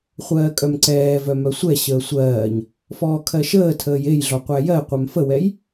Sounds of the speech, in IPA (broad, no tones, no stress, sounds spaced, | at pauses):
χʷ ɜː kʼ œ m ǀ ɛː v œ m œ sʷ ɛ ɕ əː sʷ ɜː ɲ | f ɔː kʰ ɜ ʃ əː tʰ əː j e j ɮ ɔ qʷ æ j ɜ qʷ œ m f ə w ɛ j